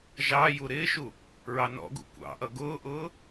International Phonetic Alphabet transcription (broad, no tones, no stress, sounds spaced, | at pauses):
ʒ ɑ j u ɾ ɪː ʃ u | ɹ ɑ n ɔ̰ ɡ ṵ kʷ ɑ̰ ʔ ʌ ɡ ʊː ʔ ʊː